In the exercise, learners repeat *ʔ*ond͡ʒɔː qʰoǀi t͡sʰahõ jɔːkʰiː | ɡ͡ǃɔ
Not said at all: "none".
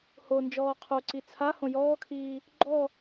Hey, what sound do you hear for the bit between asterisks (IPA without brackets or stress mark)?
h